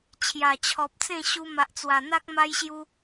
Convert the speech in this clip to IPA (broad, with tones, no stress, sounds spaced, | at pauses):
t͡ɕʰ j a˨˩ t͡ɕʰ ɔ˨ p̚ t͡s ẽ˥˧ ɕ u˧ m a˨ ʔ t͡s w a˨˩ n̪ a˦ k̚ m a˦ j ɕ j u˦